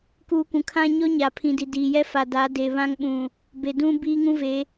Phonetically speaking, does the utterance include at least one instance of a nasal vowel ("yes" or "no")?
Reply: yes